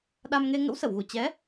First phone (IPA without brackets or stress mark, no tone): ɗ